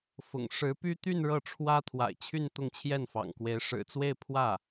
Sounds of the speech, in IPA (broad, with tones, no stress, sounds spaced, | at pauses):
f ʊ̰˨˩ ŋ ʂ ɻ̩˧˥ p y˥ t̪ y˥˧ n ɻ ɤ˥˩ ʈ͡ʂʰ w ä˥ t̪ʰ w a̰˨˩ ɪ̯ t͡ɕʰ y˥˧ n t̪ ʊ˥˧ ŋ t͡ɕʰ j ɛ˥˩ n f ɑ̰˨˩ ŋ k w e˧˥ ɪ̯ ʂ ɻ̩˨˩ t͡s w e˥˧ ɪ̯ pʰ w ä˥˩